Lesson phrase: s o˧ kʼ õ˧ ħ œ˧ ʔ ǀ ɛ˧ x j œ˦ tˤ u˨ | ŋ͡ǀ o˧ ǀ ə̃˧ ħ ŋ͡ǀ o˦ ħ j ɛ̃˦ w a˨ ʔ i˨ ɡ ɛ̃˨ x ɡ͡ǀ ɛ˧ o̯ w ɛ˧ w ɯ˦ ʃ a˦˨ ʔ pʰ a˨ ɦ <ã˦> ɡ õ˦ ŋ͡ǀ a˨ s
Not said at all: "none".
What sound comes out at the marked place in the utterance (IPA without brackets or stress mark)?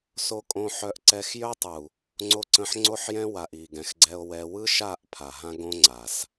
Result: ã˦